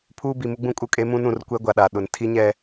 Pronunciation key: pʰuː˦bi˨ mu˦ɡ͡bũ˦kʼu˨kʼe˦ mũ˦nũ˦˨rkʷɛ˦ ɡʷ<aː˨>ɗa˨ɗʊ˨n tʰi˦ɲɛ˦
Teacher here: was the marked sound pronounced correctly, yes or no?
no